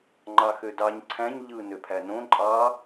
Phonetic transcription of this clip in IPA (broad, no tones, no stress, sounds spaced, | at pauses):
ŋ͡ǃ ɑ x ø d ɑ ɲ ǀʰ æ̃ ɲ ʎ ɯ n ø pʰ æ n õ ǃʼ ɑ